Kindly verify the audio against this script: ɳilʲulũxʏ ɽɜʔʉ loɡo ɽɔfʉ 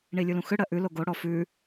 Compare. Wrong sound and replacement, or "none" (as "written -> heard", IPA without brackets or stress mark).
none